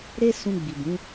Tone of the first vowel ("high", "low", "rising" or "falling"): high